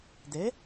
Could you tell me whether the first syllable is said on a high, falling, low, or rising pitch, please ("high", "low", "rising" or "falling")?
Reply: rising